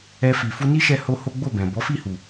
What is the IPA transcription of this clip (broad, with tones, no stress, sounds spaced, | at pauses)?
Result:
ɛ˧ f i˨ f u˧ n i˦ ʃ ɛ˦ h o˦ h o˦ ɡ͡b o˦˨ b ɛ̃˨ b ɔ˨˦ f i˦˨ h u˨